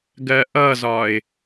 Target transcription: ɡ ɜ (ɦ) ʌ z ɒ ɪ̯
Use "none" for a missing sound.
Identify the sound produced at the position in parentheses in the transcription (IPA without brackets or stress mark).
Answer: ʔ